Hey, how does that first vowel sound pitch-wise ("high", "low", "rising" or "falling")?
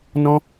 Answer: high